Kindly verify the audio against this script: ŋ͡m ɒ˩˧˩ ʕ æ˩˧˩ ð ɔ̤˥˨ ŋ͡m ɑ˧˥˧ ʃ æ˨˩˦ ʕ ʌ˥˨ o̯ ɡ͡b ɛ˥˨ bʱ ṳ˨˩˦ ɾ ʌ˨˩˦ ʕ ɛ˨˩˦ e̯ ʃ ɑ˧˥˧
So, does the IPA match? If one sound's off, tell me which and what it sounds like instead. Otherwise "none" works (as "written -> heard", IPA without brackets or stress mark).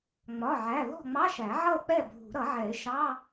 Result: ɡ͡b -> k͡p